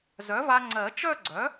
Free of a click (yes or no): no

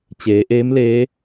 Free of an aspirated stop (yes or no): yes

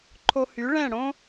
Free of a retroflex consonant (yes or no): no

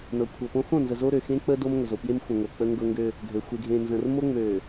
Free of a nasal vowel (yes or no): no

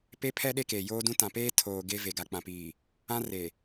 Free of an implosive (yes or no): no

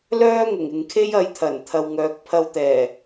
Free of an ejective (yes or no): yes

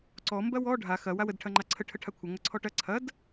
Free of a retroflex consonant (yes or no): no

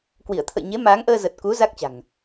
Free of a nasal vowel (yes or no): yes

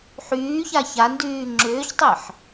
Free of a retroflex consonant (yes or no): yes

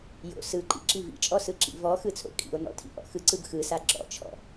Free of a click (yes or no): no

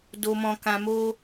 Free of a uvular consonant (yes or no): yes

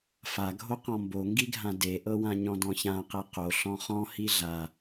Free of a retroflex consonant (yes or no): yes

